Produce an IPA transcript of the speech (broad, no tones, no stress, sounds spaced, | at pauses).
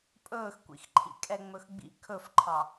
pʼ ɵː x kʷ ḭ x ǃʰ ḭ kʼ ɛ ŋ͡m ɵ x ɡ͡b ḭ kʰ ɵ f ǃʰ ɑ